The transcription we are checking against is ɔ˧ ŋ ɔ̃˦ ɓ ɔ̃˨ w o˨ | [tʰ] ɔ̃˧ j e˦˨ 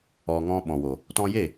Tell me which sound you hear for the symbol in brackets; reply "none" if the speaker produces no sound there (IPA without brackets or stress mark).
t